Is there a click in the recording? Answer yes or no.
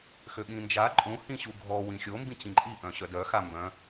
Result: yes